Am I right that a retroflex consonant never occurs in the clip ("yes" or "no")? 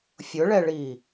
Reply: no